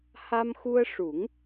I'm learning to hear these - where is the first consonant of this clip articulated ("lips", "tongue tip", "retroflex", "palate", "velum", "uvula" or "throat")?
throat